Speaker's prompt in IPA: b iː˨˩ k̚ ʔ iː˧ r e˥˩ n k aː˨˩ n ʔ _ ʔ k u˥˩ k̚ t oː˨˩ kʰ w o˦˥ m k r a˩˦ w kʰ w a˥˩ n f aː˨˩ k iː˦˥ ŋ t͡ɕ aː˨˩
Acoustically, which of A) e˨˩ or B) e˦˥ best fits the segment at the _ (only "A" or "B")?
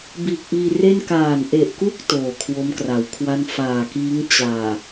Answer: A